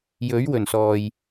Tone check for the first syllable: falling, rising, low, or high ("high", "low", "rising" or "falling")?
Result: rising